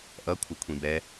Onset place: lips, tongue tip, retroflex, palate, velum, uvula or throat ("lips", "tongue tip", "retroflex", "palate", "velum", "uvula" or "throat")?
throat